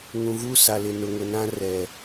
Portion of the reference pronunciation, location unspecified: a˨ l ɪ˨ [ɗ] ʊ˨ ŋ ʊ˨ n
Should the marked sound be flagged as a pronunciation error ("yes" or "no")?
yes